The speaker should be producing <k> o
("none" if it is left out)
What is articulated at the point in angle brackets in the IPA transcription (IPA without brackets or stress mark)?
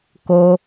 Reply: k